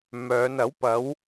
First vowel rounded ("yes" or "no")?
yes